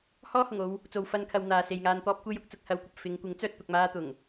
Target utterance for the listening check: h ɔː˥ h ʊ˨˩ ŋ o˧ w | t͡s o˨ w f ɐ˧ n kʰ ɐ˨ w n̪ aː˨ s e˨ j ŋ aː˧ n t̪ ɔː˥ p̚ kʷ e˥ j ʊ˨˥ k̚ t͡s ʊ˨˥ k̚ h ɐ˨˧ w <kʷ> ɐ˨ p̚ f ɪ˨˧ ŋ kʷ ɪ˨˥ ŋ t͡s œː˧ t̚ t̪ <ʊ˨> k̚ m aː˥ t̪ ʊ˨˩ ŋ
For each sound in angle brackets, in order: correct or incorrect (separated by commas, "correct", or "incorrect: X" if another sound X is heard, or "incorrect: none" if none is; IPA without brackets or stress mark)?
correct, incorrect: ʊ˧